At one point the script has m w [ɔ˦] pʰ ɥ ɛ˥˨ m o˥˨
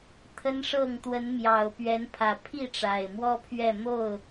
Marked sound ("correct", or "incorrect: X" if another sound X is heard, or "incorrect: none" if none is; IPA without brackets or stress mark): correct